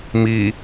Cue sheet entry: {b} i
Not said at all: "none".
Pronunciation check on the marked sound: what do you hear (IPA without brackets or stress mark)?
m